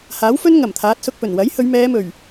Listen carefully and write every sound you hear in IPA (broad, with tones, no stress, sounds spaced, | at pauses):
h aː˨˥ w f ɵ˥ n ŋ ɐ˨˩ m t̪ʰ aː˨˥ t̚ s ʊ˧ k̚ p ɵ˨˩ n w ɐ˨˥ j h ɵ˨˧ ɥ m ɛː˨˧ m ɵ˨˩ ɥ